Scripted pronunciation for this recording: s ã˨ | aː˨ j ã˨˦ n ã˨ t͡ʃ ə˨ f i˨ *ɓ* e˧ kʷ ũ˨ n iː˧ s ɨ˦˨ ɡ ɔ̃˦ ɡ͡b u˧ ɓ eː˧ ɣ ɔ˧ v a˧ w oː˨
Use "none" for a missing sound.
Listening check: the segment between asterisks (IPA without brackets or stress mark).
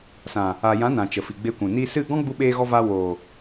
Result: ɡ͡b